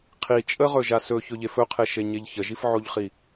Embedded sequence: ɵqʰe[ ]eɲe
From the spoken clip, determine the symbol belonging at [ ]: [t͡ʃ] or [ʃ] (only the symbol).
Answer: ʃ